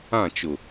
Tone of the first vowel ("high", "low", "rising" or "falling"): falling